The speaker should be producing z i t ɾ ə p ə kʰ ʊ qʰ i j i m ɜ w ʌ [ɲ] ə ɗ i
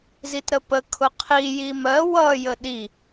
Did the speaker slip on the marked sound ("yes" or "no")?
yes